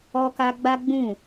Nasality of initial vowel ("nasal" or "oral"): oral